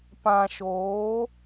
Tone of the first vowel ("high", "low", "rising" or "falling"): low